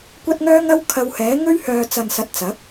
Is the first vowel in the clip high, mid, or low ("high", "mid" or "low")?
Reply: low